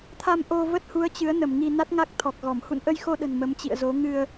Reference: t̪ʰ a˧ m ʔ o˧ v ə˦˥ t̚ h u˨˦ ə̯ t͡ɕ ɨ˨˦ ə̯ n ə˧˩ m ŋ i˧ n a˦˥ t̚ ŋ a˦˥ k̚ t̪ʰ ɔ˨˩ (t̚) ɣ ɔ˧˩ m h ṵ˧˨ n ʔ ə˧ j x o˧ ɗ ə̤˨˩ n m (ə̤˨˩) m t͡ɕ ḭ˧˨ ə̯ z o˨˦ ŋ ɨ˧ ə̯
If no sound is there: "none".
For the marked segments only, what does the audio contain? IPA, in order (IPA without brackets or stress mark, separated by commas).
k̚, ə˨˦